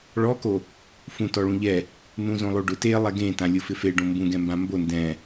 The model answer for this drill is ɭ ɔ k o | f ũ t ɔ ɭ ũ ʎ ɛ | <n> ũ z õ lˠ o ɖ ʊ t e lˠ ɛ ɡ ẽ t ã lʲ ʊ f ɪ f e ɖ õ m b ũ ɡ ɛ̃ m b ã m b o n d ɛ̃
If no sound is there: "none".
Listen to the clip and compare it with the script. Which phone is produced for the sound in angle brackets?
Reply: n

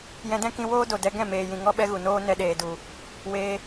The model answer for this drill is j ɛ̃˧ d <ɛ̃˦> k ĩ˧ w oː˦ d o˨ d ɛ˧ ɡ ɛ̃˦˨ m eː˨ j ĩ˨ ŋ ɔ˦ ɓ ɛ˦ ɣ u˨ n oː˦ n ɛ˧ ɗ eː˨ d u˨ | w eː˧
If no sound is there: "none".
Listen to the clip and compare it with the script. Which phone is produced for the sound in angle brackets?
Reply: ɛ̃˦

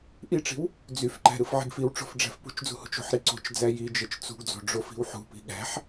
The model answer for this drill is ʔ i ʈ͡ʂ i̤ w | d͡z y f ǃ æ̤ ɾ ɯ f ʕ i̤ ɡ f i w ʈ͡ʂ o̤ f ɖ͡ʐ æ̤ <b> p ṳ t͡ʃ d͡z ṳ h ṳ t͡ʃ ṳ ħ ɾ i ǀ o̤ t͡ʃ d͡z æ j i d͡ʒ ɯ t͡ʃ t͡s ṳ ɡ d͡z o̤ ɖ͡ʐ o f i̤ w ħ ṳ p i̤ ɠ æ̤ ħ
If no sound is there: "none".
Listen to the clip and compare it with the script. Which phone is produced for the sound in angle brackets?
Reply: f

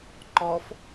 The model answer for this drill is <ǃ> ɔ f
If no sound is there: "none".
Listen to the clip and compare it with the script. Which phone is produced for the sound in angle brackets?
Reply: ǃ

